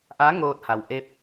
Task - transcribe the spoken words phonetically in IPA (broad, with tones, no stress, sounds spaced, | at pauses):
ʔ a˧˥ ŋ oː˧ t̚ h a˩ w ʔ e˧˥ p̚